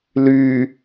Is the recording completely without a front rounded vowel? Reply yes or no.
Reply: no